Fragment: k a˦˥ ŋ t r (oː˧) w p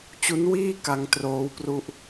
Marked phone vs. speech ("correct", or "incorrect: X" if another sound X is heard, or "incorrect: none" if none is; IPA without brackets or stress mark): incorrect: oː˦˥